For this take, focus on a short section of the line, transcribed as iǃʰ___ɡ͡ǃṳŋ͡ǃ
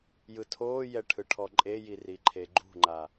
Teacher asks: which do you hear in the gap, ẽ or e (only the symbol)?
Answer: e